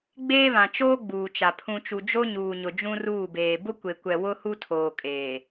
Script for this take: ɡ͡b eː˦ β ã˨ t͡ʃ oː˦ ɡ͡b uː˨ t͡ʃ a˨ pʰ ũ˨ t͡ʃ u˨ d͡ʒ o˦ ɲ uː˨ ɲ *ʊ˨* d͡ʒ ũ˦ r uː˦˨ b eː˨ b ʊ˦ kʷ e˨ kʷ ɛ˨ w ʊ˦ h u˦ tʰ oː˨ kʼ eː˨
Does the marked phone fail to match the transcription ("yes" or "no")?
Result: no